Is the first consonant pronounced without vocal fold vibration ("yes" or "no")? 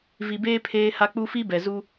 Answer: no